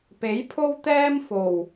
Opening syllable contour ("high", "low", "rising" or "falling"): rising